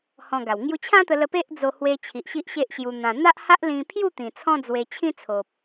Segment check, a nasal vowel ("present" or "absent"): present